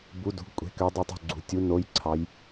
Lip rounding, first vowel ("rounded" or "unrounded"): rounded